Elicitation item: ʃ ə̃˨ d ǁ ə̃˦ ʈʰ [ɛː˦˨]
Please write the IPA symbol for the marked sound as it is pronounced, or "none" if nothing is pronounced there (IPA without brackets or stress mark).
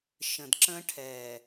ɛː˨